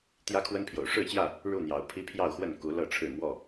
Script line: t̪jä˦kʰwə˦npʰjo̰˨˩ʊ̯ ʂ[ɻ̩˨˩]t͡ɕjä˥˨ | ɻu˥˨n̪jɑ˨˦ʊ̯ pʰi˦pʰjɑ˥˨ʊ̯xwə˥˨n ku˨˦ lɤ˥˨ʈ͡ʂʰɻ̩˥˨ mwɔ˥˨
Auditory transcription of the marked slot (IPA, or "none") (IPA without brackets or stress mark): ɻ̩˥˨